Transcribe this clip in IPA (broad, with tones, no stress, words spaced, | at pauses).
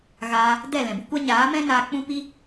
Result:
ɣaː˧ | dɛ˦˨lɛ̃˨bu˦kʷa˦ ɲaː˨˦mɛ̃˦naː˧ k͡pũ˦pi˦